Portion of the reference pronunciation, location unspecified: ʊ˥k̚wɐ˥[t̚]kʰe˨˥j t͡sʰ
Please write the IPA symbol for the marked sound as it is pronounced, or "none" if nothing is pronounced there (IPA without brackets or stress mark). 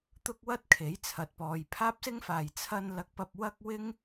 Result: t̚